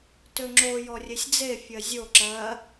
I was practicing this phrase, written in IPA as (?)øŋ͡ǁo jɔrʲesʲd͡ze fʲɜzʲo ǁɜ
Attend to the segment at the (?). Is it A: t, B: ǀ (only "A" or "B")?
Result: A